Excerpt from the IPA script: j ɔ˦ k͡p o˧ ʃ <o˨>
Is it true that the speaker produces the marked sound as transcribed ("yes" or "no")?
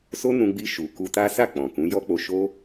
no